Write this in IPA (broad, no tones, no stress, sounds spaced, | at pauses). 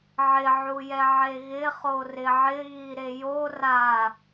ʕ ɪ ʕ u j ɛ ʕ e ɣ ɪ χ o r ɪ ʕ ɪ ɣ i ɾ e j o r a